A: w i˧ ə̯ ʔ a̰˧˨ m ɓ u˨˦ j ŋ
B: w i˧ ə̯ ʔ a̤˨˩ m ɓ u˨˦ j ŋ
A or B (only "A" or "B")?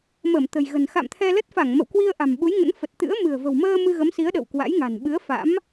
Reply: B